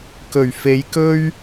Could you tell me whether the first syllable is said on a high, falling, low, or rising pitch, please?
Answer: low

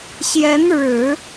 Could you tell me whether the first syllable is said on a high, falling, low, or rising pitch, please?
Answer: rising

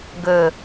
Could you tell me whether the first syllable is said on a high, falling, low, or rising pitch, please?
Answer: low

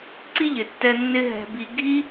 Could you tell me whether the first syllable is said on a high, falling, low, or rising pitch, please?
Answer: high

